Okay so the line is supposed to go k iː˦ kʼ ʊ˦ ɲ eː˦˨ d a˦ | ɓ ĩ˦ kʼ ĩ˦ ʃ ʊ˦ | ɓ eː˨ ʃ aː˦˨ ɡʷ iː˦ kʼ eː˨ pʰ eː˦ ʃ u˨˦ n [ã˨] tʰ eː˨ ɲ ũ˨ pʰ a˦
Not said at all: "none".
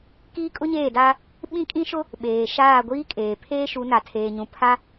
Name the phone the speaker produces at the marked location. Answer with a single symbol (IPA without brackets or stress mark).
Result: a˨